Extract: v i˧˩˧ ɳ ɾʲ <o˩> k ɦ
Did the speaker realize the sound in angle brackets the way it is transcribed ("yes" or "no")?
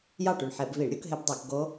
no